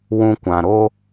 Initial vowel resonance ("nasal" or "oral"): nasal